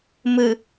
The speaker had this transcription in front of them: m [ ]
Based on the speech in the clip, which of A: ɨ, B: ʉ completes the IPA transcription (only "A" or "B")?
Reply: A